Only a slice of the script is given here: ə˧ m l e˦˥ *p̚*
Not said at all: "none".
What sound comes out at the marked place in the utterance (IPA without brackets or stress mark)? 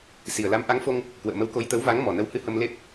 p̚